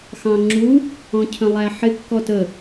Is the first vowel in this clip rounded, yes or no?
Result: no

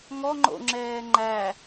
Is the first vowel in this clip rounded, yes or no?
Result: yes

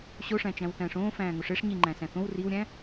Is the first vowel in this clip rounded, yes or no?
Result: yes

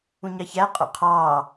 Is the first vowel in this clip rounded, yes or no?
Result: yes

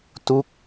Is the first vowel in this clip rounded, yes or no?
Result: yes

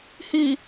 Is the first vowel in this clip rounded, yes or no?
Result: no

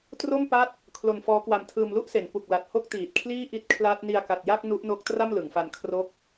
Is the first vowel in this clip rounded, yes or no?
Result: yes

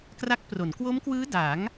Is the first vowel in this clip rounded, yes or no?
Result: no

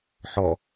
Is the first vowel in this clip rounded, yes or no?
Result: yes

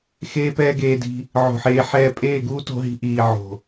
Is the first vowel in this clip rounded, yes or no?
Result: no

